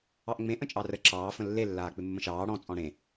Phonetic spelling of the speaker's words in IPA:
ɑʔŋ͡mẽ ʔə̃t͡ʃʼɑrə ǁɑː fə̃lːe lːaːk͡pɪmːə̃ʃɑː ɽɔ̃ t͡sʼɔ̃ɽẽ

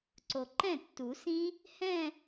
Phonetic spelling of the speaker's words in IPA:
ǀo˨ǃɛ̃˥˩tːu˨˩˦sĩ˦˥ | hɛ̃˥˧

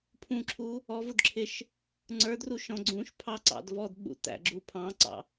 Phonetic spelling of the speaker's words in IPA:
pʰũǁʰu | ɔvʊd ǁʰɪʃ | ŋ͡ǀə˞dru ʃɔ̃ ɡ͡ǀũʃ pʰɑ ǀɑ̰dvɔdɓṵ tæ̰ɡ͡ǁu pʰɑ̃ǀɑ̰

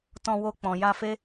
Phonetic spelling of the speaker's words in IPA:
tɔ̃˧ wo˧ k͡pɔ̃˨ja˧fe˦

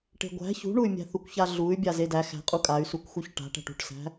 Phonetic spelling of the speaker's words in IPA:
ʈe̤ɡʷæ̤ çṳɳuy̯mʲæ̤ θukʷçaɮuy̯bʲa zedæ xæ̤qʼu kʼay̯sukʷxuç ʈa̤ʈæ̤ʈ ṳʈsæ̤

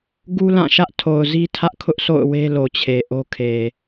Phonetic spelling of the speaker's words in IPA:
ɡu˦lã˦˨ʃä˦ʔ tʰo˨ʊ̯zi˦ tʰä˦ʔkʰʊ˦ʔso̰˦˨ʊ̯ we˦lo˨t͡ɕʰe˨ ʔo˦kʰe˨

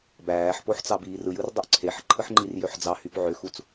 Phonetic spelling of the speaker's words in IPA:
bæːħpoħ t͡sɑbiːrɯjɯr dˤøʔǀʰeħǃʰɯħ ŋ͡ǃirjøħd͡zɑhyp ʕøxut͡s

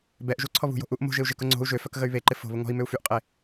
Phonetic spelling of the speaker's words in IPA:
bɛʔʒu ǀʰɔβṳjo̤ ʔuʔ mo̤ʒɪu̯ ʒɪkʊ ŋ͡ǀo̤u̯ ʒøfœk ɣəy̯βeǃɪ fo̤ βʊŋɔ̤i̯mʏu̯ fyʔqʼe

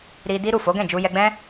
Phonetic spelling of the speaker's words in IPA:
ɾi˧ di˦ɾu˦˨ fo˨˦ɡɛ̃˦˨d͡ʒu˧ jɛ˧ɡ͡bɛ̃˦

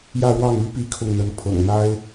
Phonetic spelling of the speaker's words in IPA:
jä˥˧ɻwɑ˥˩ŋy˥ pi˥˧kʰʊ˥˩ŋn̪ə˧˥n pʰɤ̰˨˩ŋn̪a˥ɪ̯

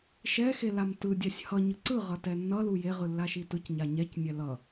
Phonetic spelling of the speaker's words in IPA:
ʃɛxelam tɯdʲasʲ hʌɲɯ ǀɯʁʌtɛ nːʌlu jeʁɯlːaʃi tɯcɲa ɲɛcnʲɛ lʌ

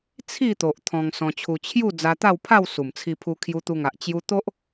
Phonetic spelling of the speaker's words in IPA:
t͡sʰi˥˧t̪o˨ʔ t̪ʰɔ̃˧ŋ sɔ̃˧t͡ɕʰu˧ t͡ɕʰju˥˧ d͡za˧t̪a˥˧wpʰa˥˧w su˨˩mt͡sʰi˧pʰu˧ kʰju˧t̪u˧ŋa˨ʔ t͡ɕju˧t̪o˦ʔ

